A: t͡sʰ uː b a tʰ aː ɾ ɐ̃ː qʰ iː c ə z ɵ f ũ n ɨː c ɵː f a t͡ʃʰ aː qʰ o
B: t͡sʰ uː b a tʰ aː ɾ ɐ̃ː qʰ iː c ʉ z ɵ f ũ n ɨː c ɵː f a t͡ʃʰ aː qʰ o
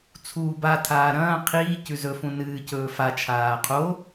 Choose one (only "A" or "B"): B